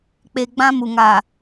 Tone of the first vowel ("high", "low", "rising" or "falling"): low